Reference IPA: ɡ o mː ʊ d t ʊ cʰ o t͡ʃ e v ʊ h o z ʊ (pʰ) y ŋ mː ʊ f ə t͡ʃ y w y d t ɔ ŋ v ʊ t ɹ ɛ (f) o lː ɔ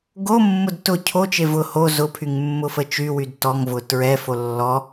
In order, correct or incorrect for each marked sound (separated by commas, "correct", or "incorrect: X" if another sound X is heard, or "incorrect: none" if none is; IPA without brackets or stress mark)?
correct, correct